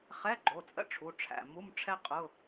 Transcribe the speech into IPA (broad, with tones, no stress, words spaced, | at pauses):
χɛ˧˥˧ɡ͡ǃo˩˧˩t͡sʼə̰˥ ʈ͡ʂʰu˩˧˩ʈ͡ʂʰæ̰˩˧˩ mu˧˥˧m ʈ͡ʂʰɛ˥ qʼʊ˧˥˧